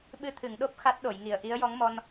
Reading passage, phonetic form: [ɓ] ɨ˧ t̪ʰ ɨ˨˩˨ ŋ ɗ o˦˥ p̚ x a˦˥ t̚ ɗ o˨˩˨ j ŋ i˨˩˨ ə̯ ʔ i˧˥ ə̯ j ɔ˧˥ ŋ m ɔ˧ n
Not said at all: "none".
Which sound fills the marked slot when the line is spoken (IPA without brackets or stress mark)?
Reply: ɓ